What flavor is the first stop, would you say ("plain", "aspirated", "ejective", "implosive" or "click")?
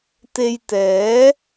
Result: plain